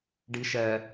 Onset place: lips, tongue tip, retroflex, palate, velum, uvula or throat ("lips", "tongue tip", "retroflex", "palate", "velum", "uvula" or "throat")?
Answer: retroflex